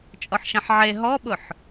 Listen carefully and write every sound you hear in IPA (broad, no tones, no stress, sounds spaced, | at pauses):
t͡ʃʼ ɔ ħ ʃ ɐ̃ ħ ʕ e ɦ ɔ ɓ ʊ ħ